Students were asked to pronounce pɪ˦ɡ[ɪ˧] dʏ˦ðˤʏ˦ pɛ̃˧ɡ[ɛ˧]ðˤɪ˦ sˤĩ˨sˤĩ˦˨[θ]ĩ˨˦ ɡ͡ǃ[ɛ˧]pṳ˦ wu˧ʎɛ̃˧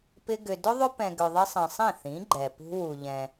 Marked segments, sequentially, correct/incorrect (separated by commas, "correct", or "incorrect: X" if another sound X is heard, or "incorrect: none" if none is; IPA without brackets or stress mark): incorrect: ʏ˧, incorrect: ʏ˧, correct, incorrect: ɛ˨